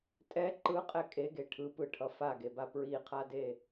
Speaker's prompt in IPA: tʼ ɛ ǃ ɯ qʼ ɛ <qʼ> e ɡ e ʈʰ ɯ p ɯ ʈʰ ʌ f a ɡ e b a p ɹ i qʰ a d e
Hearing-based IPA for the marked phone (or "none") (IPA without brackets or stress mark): kʼ